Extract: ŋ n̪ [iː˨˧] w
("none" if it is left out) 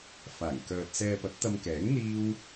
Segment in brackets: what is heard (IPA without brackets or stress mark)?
iː˥